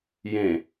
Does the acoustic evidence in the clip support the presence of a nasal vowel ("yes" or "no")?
yes